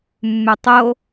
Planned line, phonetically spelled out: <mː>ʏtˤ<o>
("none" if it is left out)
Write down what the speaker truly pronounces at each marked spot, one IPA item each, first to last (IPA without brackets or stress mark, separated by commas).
mː, o